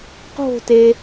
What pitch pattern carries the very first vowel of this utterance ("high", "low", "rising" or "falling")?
falling